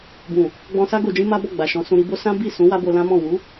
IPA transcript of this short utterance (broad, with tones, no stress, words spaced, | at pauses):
bũ˨ | ɡ͡bɔ̃˧sa˦ ɡo˧d͡ʒĩ˦ma˦bɔ˦˨ ɡ͡ba˨ʃɔ̃˨˦sũ˧ ɾi˧bo˦ sã˦ bi˦˨sũ˨˦ wa˦bo˧lã˦mɔ̃˦˨ wu˨˦